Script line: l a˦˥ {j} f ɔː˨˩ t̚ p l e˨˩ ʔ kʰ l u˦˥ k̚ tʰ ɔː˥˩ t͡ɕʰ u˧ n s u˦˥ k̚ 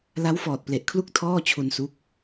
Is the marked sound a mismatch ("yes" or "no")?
yes